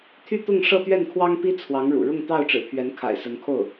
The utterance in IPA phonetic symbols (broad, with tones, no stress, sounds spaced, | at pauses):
t̪ʰ y˥˧ t̪ ʊ˥˧ ŋ ʂ ɤ˥˧ t̪ ɥ ɛ˥˩ n kʰ w ɑ˥ ŋ p i˥ t͡sʰ w ɑ˧˥ ŋ ɻ ṵ˨˩ ɻ ʊ˥˧ ŋ t̪ ɑ˥˩ ʊ̯ ʈ͡ʂ ɻ̩˨˩ pʰ ɥ ɛ˧˥ n kʰ a̰˨˩ ɪ̯ s ə˧˥ n kʰ o˥˩ ʊ̯